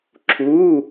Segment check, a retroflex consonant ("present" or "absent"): absent